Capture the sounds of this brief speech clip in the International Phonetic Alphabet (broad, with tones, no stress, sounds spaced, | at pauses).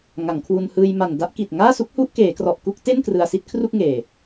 ŋ a˩˦ ŋ kʰ w u˧ n h ɯː˧ j m a˨˩ n d a˦˥ ʔ k i˨˩ t̚ ŋ aː˥˩ s u˦˥ k̚ h u˥˩ ʔ k eː˩˦ k r ɔ˨˩ ʔ k u˥˩ k̚ t e˥˩ n k r ɯ˧ a̯ s i˥˩ t̚ kʰ r u˥˩ k̚ ŋ eː˨˩